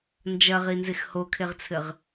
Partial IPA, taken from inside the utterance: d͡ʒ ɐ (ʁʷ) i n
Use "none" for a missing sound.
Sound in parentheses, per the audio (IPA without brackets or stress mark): ʁ